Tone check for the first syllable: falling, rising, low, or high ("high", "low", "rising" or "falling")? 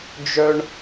high